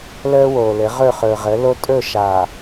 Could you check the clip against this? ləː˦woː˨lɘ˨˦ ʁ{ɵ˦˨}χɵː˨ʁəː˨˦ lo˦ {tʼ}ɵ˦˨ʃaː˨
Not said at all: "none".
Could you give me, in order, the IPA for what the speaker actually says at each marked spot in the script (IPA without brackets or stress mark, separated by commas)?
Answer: ɵ˦˨, tʼ